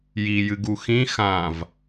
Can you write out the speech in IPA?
jijɨɡu xĩ xãv

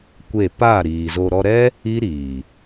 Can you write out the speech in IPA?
kʷe˦˨ pa˦˨ ɾiː˨zo˧ ɾɔ˧ɾɛ˦ | i˦ɾiː˨

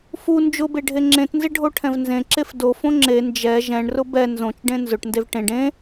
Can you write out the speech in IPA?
fu nd͡ʒʊbeɖʱe ŋ͡ǁẽtnzɪɖʱoʈʰɛ̃v nzẽǁef dofõ ŋ͡ǁe nd͡ʒɛ ʒɛ̃ɳrʊ bɛ nzõt͡ʃɖẽ nzʊʈndev ʈẽɖ ẽ

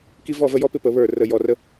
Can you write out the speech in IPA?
ki˦ vɔ˥˨və˦jɔ˦pɪ˥˨ pə˧˩˧βə˞˧˩ rə˧˩jɔ˧˩rə˦

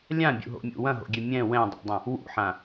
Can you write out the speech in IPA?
lʲãbʲṵɦo̰mʲṵ wɐ̃ɦo̰ɡʲɛ mʲɛ̃ wɛ̃dˤḛdˤɐ̃ | wṵħã

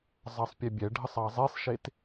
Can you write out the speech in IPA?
zˤɑsˤpʲebʲɛɖʱəsˤ ɑzˤesˤʃet

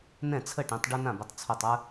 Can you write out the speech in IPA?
nɛ̃˥˩t͡sʰə˥˩ʈẽ˨˥tˤ ɖu˦nã˥˩bʊ˨˥tˤ t͡sʰu˧˩tˤə˞˦

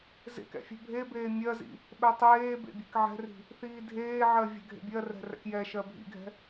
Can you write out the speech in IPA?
zḛkɛ̰ fʲɛ̤bʱebeː mʲɜzḭ | ɓɛtˤeːbḛ bʲe̤kʕɛ̤ri̤ | θiːdʱeːʕɜ vʲɛ̤ɡʱḛbʲɜrɛ̤ rɛ̰kjɛʃɜ bʱḭɡʱɛ̤

